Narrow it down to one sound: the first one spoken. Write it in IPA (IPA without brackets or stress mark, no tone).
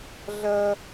ɮ